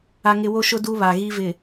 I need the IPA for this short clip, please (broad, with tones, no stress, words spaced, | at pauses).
a˦ŋɪ˦ wo˦ʃʊ˦ du˦βa˨ ɣi˦vɪ˨